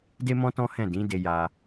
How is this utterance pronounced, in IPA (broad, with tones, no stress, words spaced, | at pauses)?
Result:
de˦mɔ̃˦ tɔ̃˦hɛ̃˦˨ dĩ˨˦de˧ja˧